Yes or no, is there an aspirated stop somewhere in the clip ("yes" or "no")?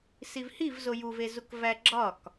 no